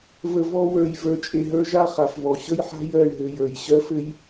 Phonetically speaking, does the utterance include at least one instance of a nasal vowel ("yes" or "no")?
no